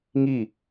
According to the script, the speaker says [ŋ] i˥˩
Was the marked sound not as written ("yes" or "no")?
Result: no